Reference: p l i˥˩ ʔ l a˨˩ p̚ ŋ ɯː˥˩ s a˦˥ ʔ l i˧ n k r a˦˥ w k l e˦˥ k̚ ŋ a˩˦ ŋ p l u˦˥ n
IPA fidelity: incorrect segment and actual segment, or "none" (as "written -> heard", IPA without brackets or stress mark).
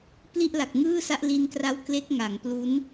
p̚ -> k̚